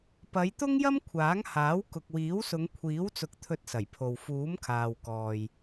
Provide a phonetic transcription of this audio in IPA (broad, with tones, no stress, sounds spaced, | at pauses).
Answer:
p ɐ˨˧ j t̪ ʊ˥ ŋ j ɐ˥ m kʷʰ aː˨˥ ŋ h aː˨˥ w k ʊ˨ k̚ w iː˨˥ w s ʊ˨˧ ŋ kʷʰ iː˨˥ w t͡s ʊ˨˥ k̚ t̪ʰ ɵ˧ t̚ s ɐ˨˩ j pʰ o˨ w f uː˨˥ m kʰ aː˨ w k ɔː˨ j